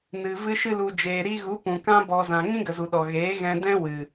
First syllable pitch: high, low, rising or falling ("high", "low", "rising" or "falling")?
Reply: low